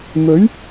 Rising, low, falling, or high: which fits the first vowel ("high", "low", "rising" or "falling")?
rising